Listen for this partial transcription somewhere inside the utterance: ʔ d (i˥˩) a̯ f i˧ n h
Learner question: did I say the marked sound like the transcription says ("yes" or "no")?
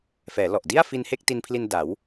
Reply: yes